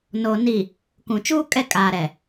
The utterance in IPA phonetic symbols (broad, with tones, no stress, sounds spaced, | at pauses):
n oː˨ n i˨ | k ũ˨ t͡ʃ uː˦ kʼ ɛ˦˨ kʼ aː˨ ɾ ɛ˨